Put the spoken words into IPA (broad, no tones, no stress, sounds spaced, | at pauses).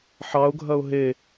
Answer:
ħ ɑ ʊ̯ ɡʱ ɐ ʊ̯ ɦ e